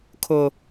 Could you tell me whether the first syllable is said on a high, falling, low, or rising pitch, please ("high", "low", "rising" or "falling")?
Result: high